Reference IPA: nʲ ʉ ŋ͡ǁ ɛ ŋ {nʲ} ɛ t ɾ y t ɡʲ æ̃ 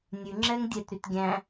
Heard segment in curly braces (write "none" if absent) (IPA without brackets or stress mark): dʲ